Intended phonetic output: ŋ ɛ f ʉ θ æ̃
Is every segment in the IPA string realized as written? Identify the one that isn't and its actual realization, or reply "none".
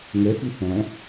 none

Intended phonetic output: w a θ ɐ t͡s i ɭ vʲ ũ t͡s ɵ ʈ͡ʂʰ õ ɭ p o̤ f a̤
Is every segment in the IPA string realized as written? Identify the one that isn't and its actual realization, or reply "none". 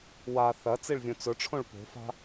none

